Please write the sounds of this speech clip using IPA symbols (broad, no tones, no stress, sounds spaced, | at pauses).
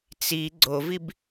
t͡s i ɡ͡ǀ o v i b